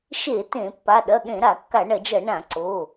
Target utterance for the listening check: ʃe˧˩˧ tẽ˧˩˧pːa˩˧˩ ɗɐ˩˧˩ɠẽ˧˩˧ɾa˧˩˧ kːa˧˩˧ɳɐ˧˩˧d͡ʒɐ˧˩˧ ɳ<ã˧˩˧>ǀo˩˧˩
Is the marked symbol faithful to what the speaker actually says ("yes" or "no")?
yes